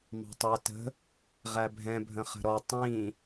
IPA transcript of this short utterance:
m ɑ̤ tˤ æ t ə̤ | ʁ æ bʱ ɛ̃ bʱ ə̃ χ ə̤ ɾ ɔ tˤ ĩ

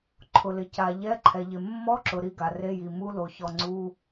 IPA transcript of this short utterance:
ǃʰ ʊ˩ l ɪ˩ c a˩ ʎ ɛ˧˥˧ ǃʰ ɛ˩ ʎ ɪ˩ mː ɔ˧˥˧ ǁ ʊ˩ ɾ i˧˥˧ ɡ a˩ r e˧˥˧ j i˩ m u˧˥˧ l o˩ ç ɔ˩ ŋ͡ǀ u˧˥˧

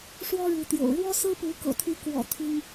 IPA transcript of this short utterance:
ʂ w ɔ˦ ɻ u˨˦ t̪ j o̰˨˩ ʊ̯ ɻ w ɔ˦ s ɹ̩˦ p u˨˦ k ɤ̰˨˩ t̪ʰ y˨˦ k w ɔ̰˨˩ t̪ʰ i˦ ŋ

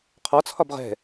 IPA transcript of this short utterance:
qʰ ɒ t͡sʰ ɒ b ʁ ɛ̤

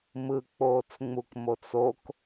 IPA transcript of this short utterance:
m ɯ k͡p oː t͡s ŋ͡m u k m o t͡s o k

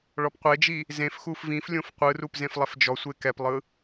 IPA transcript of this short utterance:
ɭ ɔ p qʷ e d͡ʒ i | z ẽ f x u f v ĩ f lʲ õ f qʷ ɯ r u p z ẽ f lˠ ɛ f d͡ʒ ɔ sʷ e k ɛ p lˠ ɯ

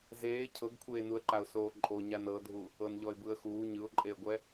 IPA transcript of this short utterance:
z eː cʰ ɤ ɡ kʷʰ eː n u ə̯ ǃ a ʊ̯ s oː ǃʼ o ɲ a n ɤ dʱ u | ɤ n ʎ ɔ ɪ̯ b ɯ ə̯ x uː ɲ ɯ ʊ̯ ǃʼ e ə̯ ɡʷ ɛ

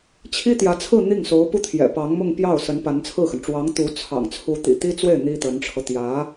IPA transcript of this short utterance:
t͡ɕʰ i˥ t̪ j ä˧˥ t͡sʰ ɹ̩˥˧ n̪ i˥˩ ŋ s o˧˥ ʊ̯ p u˥˩ t̪ʰ j ɛ̰˨˩ p ɑ˧˥ ŋ m ʊ˥˧ ŋ p j ɑ˥˩ ʊ̯ s ə˧˥ n p a˧˥ n t͡sʰ ɹ̩˥˩ x ə˩ n ʈ͡ʂ w ɑ˧˥ ŋ t̪ u˧˥ t͡sʰ ɑ̰˨˩ ŋ t͡sʰ u˧˥ t̪ ḭ˨˩ t̪ i˥ t͡s w e˥˩ ɪ̯ n̪ i˥ t̪ ə˧˥ n ʈ͡ʂʰ ɤ˧ t̪ j ä˧˥

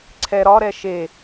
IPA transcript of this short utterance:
ǀʰ ɛ ɾ ɒ ɾ ɛ ʃ e

